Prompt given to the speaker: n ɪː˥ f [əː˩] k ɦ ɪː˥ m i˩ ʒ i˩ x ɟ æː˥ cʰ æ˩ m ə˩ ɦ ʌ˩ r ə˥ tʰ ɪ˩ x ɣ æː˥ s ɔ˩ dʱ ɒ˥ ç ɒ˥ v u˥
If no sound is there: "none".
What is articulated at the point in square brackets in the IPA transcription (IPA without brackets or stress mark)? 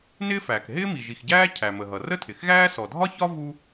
æː˩